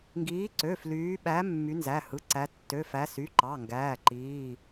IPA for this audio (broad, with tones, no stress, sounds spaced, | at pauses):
ŋ ɡ iː˨˦ ǀ ø˩˧˩ f l yː˨˦ ɓ æ˨˦ mː y˨˦ n z æ˩˧˩ h ɯ˩˧˩ ǀ æ˨˦ tː ø˩˧˩ f æ˨˦ s y˩˧˩ ǃ ɑ˩˧˩ ŋ ɡ æː˩˧˩ ǃ iː˩˧˩